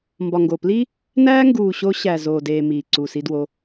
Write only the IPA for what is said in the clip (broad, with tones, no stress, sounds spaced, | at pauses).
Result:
m b ɒ˨ ŋ ɡ o˨ p l i˦ | n æː˦ ŋ ɡ uː˨ ɕ o˧ ɕ æ˨ z oː˨ d eː˨ m iː˨ ǀ u˨ s i˧ d w o˧